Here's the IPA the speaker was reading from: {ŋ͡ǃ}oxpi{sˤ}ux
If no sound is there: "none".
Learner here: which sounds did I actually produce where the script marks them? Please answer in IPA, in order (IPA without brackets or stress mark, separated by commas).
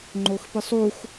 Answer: ŋ͡ǃ, sˤ